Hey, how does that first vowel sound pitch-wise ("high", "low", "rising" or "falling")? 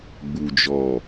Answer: low